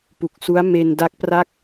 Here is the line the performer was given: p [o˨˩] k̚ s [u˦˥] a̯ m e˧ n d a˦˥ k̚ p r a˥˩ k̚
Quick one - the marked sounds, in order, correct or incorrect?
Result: incorrect: u˨˩, correct

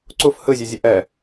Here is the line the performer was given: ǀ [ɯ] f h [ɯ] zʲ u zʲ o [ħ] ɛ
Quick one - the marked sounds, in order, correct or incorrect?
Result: incorrect: u, correct, incorrect: ʔ

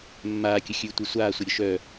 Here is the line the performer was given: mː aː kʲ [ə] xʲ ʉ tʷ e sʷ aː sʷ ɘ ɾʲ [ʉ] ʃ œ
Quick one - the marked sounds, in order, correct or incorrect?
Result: correct, incorrect: ʊ

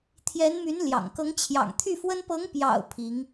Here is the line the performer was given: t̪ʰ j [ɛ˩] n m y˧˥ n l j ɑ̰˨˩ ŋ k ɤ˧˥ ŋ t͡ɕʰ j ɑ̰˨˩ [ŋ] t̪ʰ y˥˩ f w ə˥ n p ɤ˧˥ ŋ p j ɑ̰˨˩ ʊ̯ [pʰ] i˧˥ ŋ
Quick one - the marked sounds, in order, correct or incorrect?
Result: incorrect: ɛ˧˥, correct, correct

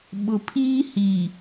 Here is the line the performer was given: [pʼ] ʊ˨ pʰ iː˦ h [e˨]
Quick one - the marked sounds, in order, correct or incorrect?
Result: incorrect: ɓ, incorrect: i˨

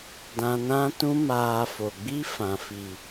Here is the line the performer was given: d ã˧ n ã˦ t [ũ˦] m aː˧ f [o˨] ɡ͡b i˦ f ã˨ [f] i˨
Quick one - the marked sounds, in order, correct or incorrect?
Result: correct, correct, correct

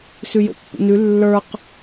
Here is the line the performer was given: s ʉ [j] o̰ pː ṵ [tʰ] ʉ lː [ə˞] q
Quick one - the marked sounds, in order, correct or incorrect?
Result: correct, incorrect: n, correct

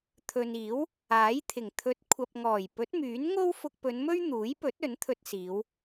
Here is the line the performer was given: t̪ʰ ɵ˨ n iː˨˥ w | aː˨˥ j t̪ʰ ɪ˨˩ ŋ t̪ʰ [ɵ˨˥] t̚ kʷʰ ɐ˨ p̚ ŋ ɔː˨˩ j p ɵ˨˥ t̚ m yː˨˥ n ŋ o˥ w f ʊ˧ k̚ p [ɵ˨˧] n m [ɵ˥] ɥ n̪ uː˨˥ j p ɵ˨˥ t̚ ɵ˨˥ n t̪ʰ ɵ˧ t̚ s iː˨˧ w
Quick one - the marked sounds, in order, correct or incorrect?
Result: correct, correct, correct

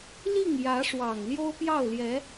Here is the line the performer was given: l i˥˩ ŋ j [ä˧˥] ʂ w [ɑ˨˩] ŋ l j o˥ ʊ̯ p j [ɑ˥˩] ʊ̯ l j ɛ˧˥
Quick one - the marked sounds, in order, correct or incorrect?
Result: correct, correct, correct

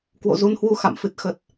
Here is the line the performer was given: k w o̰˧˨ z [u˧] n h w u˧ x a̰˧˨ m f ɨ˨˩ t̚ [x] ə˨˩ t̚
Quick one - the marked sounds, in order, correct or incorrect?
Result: correct, correct

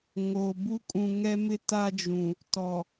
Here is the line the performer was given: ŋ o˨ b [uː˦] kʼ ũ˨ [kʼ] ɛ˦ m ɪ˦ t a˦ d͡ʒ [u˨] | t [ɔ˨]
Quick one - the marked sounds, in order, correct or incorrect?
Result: incorrect: u˦, incorrect: ŋ, incorrect: ũ˨, correct

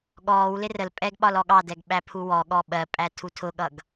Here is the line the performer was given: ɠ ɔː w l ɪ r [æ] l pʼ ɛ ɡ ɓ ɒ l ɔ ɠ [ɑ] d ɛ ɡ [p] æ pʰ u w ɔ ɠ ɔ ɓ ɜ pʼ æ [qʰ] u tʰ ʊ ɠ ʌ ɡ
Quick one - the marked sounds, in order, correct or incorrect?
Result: incorrect: ə, correct, incorrect: ɓ, incorrect: tʰ

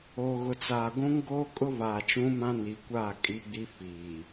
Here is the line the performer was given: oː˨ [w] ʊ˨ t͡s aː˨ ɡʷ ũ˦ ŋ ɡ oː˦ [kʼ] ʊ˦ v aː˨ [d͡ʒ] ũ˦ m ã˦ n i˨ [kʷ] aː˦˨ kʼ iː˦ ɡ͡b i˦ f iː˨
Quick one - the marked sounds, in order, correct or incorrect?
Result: incorrect: ɣ, correct, incorrect: t͡ʃ, correct

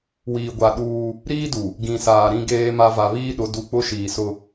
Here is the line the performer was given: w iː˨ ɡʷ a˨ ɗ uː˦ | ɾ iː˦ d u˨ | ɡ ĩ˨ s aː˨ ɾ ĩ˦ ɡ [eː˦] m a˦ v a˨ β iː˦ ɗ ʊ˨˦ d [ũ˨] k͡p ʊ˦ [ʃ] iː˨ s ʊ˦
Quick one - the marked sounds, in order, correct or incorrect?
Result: correct, incorrect: u˨, correct

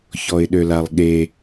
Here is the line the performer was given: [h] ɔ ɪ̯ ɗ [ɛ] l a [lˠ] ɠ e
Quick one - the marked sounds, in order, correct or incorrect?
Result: incorrect: ç, incorrect: ø, correct

